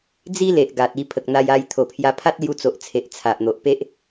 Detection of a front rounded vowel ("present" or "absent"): absent